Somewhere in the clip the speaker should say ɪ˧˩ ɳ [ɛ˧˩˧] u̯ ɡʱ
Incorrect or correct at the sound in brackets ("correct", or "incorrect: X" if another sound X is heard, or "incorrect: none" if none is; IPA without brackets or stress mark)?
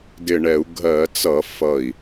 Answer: correct